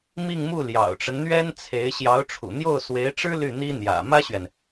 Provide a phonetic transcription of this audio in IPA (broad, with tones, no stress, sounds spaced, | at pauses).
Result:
m i˥˧ ŋ m u˥˩ l j ɑ̰˨˩ ʊ̯ ʈ͡ʂ ə˦ n n̪ ɥ ɛ˥ n t͡sʰ e˧˥ ɪ̯ ɕ j ɑ˧˥ ʊ̯ ʈ͡ʂʰ ṵ˨˩ n̪ j o˥˩ ʊ̯ s w e˧˥ ɪ̯ ʈ͡ʂ ɻ̩˥ l y˥˩ n̪ i˥ n̪ j ä̰˨˩ m ä˥ ɕ ɥ ɛ˨ n